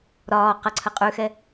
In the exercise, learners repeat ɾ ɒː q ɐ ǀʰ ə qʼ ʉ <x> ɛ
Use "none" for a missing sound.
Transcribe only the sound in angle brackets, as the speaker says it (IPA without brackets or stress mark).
x